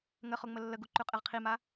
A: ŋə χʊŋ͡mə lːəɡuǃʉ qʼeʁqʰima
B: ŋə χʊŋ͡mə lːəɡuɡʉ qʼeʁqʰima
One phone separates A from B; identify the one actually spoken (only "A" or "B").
A